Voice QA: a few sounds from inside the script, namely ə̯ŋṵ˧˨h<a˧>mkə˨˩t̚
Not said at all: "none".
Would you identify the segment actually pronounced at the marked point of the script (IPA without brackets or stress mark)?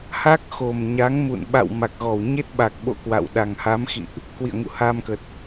a˧